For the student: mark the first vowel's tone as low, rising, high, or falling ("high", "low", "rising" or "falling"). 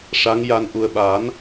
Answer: rising